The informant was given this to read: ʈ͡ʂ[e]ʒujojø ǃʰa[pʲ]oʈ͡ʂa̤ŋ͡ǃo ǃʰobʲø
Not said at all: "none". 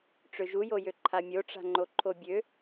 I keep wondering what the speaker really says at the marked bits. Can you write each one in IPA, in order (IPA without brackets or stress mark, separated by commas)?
ø, mʲ